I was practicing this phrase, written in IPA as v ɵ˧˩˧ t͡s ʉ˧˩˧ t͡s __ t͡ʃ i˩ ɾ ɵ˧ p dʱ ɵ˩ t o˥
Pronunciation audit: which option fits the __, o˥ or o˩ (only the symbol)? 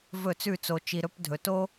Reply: o˩